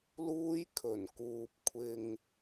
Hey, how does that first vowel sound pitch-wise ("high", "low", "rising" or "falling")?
high